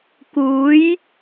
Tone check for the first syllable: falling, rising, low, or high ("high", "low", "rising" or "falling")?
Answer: rising